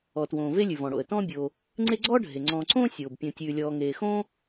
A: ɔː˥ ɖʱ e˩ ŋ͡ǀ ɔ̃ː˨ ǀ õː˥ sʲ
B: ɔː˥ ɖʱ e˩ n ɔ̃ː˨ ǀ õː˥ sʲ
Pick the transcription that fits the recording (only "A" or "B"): A